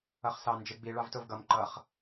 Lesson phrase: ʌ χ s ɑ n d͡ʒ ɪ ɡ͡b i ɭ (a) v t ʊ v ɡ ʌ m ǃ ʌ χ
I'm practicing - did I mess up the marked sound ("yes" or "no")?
yes